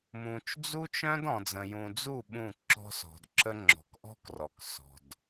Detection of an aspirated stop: absent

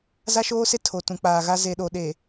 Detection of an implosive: present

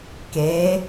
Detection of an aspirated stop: absent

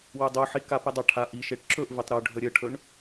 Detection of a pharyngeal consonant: present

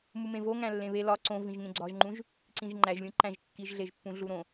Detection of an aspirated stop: absent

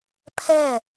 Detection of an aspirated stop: present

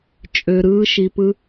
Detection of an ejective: present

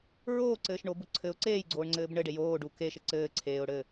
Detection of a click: present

